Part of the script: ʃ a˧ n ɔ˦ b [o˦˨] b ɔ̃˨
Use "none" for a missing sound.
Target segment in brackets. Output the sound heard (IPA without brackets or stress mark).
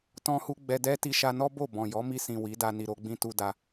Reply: o˦˨